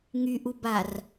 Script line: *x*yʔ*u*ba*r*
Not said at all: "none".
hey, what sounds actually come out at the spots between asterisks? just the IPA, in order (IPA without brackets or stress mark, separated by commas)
ŋ, u, r